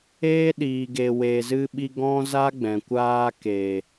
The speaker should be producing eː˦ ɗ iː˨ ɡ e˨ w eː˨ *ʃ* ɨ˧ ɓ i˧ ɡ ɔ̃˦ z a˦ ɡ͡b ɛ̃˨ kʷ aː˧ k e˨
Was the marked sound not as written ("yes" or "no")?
yes